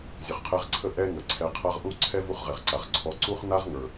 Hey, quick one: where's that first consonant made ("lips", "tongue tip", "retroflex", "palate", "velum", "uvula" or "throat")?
tongue tip